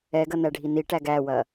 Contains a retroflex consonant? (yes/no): yes